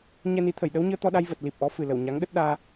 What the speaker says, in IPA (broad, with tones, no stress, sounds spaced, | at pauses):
ɲ ɛ˧ n i˨˦ t̪ʰ ə˧˩ j ɗ ə˨˦ w ɲ ɨ˧ ə̯ t̪ ɔ˧ ɗ a˧ j v ə˨˩ t̚ l i˨˩ p̚ ʔ ɔ˨˦ f ɨ˨˩ l ə˧˩ w ɲ a˨˦ ŋ ɗ ə˦˥ t̚ ɗ aː˧